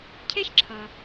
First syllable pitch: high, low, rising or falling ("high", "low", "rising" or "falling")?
high